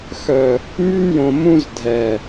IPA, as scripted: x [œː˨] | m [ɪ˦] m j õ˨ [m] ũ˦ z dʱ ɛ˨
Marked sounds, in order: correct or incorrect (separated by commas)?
incorrect, incorrect, correct